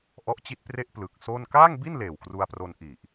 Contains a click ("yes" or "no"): no